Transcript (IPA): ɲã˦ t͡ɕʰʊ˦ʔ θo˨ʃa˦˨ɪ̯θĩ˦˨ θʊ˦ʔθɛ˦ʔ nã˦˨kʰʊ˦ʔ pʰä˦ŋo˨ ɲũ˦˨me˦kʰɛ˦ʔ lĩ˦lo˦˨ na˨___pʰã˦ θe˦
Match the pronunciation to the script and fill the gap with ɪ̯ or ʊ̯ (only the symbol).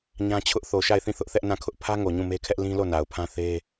ʊ̯